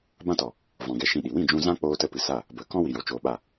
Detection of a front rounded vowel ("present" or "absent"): absent